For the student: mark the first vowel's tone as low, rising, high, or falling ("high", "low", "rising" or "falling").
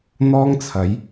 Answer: high